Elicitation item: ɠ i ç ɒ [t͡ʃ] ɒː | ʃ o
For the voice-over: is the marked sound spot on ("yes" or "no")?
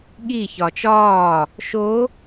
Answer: yes